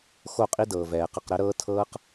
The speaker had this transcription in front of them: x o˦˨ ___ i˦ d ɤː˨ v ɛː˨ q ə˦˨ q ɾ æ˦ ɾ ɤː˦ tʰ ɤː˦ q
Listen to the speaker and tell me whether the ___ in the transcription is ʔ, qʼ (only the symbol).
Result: qʼ